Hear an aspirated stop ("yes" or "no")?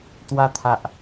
yes